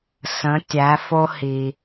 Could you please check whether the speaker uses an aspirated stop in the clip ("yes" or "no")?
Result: no